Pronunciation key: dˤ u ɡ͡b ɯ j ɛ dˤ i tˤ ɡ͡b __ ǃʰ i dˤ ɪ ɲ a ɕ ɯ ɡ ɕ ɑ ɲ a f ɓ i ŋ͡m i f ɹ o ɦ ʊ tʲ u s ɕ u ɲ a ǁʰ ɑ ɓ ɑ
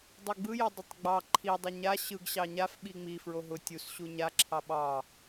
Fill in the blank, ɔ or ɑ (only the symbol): ɑ